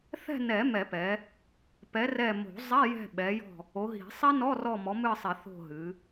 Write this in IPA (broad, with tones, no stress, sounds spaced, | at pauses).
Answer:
θ ɛ̤˦˨ n ɛ˨˩˦ m ɛ˨˩˦ p ɛ˨˦ | p ɛ˨˦ r ɛ˦˨ m o̤˨˩˦ zˤ ɛ˧˥˧ j ɛ̤˦˨ ɓ ɛ˨˦ j ɔ̤˦˨ | o˨˦ ɦ i̤˨˩˦ sˤ i˦˥ n ɔ˧˥˧ r ɔ˦˨ m ɔ˨˦ m ɨ˦˨ sˤ i˨˩˦ θ o̤˦˨ ɦ ɨ˨˦